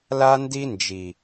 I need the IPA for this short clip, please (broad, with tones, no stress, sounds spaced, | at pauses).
l a˦ n d i˦ n d͡ʒ i˨